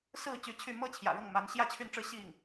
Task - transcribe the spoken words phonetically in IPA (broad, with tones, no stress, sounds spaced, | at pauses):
s ɹ̩˥˩ t͡ɕ y˧˥ t͡ɕʰ y˥˩ m ɤ˥ t͡ɕʰ j ä̰˨˩ ɻ ɤ˥˩ ŋ m a˧˥ n ɕ j ä˥˧ t͡ɕʰ y˥˧ n ʈ͡ʂ ɻ̩˥˧ ɕ i˥˩ ŋ